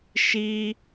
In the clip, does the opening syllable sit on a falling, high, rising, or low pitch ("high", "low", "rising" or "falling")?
high